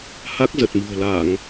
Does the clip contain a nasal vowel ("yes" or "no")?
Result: no